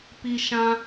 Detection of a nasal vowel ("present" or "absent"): present